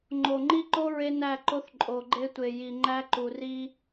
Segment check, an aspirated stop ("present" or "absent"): absent